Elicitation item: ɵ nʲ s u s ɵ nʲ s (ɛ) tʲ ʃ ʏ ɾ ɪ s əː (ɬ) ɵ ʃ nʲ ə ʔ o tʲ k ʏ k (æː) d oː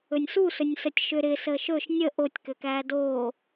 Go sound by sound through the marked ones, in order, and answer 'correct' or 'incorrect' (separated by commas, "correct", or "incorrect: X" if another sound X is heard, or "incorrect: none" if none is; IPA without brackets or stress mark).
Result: incorrect: ə, incorrect: ʃ, correct